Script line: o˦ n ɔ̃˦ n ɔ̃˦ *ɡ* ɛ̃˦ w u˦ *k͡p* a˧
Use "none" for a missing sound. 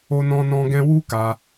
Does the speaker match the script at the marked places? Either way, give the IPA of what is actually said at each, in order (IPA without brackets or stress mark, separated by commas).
ɡ, k